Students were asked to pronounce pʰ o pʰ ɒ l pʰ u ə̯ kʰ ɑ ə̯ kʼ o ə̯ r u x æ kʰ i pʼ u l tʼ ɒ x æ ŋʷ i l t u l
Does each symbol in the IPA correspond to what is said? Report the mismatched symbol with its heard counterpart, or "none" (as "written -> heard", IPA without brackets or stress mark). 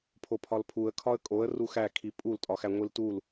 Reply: ɑ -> ɒ